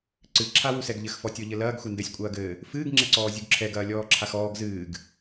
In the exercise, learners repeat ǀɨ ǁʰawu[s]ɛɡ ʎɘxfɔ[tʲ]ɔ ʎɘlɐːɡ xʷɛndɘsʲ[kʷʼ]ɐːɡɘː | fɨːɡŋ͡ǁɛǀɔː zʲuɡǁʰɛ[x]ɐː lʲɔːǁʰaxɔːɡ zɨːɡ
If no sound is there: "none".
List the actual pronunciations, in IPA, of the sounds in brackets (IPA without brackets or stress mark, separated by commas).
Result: s, tʲ, kʷʼ, ɡ